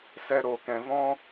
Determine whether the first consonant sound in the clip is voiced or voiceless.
voiceless